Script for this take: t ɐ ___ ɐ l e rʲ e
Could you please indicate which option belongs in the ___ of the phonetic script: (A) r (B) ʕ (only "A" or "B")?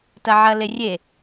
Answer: B